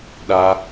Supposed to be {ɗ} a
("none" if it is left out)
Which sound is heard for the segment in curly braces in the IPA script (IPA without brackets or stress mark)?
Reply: ɗ